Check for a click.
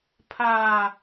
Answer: absent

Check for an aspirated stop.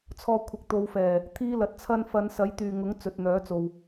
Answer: present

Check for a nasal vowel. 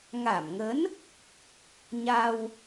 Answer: absent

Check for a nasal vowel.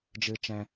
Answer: present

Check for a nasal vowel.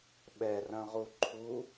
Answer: present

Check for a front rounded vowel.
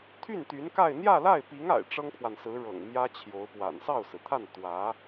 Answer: present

